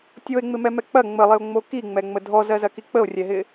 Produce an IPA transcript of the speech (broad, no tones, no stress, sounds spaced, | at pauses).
tʲ o e̯ ŋ͡m ɪ m ɛ m ɛ k͡p ɐ ŋ͡m ə lˠ ɪ o̯ ŋ͡m o k i ŋ͡m ɛ ŋ͡m ə dʱ ɔ z ɜ z ɐ k i k͡p ə o̯ rʲ ɛ ɦ ɪ